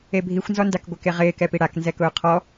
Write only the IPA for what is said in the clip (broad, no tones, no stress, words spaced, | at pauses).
ebʱixʷnzɔndak ɡʷɪkeʁɪːkɛ piɽak nzɛkʊːqʰɔ